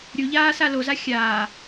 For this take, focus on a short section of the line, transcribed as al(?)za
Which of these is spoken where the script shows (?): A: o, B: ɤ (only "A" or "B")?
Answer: A